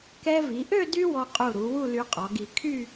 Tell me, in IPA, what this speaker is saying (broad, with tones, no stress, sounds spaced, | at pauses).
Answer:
k ɛ˧ v i˩˧ ʔ ø˥˧ d y˥ w ɔ˧ qʼ u˧˩ ɾ u˩˧ w u˥˧ l y˧ qʼ ɔ˩˧ ɡ i˧˩ kʰ y˥˧